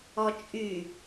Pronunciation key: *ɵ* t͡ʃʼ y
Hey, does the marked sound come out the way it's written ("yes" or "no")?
no